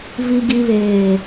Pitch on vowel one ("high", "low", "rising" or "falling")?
low